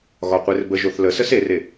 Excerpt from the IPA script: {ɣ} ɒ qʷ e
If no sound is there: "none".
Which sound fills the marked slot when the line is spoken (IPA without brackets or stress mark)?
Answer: ɣ